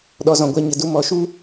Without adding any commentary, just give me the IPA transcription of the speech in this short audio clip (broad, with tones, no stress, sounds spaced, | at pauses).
ɗ ɔ˧ z ɔ̃˨ ɡʷ a˧ ɲ ə˨ d u˧ m ɔ˨ ʃ u˦